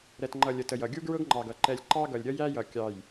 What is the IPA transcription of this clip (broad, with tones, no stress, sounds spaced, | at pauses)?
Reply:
ɾ ɛ˨ t ŋ͡ǃ ʌ˨ lʲ ə˨ t ə˨ j ʌ˨ ɡʲ u˦ ɡ ɹ ʊ˦ ɡ ŋ͡ǃ ɑ˨ ɡ ʌ˨ ǃ ɛ˨ lʲ ǃ ɑ˦ ɡ ʌ˨ lʲ ɾʲ ʌ˦ j æ˦ j ʌ˨ kʲ ɑ˨ j